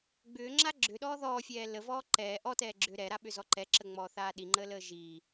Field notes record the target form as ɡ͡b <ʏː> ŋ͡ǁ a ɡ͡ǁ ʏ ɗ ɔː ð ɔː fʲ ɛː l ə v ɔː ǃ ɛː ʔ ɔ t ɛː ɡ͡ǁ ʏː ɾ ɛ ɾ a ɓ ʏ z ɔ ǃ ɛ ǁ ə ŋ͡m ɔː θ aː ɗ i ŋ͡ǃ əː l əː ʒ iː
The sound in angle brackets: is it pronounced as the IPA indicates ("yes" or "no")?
yes